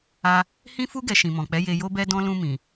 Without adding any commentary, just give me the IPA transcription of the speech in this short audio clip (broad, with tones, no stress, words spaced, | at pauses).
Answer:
a˧ | hĩ˦fu˦ ɡɛ˧ʃĩ˨mɔ̃˨k͡pɛ˨˦ je˧jo˦ bɛ˧dɔ̃˧ lũ˧mĩ˨